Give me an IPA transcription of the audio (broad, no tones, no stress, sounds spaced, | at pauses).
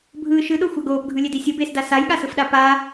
bʱ ɯ ʃ ɯ ɗ o xʷ a ɡ oː p ɡʱ ɯ lʲ e d i sʲ u b eː s d a s a j ɠ a s ɯ f ɗ a p a